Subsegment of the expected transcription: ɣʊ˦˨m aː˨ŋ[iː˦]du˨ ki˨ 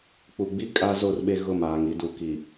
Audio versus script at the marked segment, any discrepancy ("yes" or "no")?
yes